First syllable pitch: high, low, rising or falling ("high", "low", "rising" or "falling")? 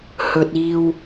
low